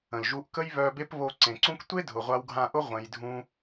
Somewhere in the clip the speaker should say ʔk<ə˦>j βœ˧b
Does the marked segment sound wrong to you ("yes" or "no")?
no